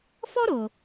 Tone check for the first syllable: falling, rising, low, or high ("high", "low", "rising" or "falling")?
high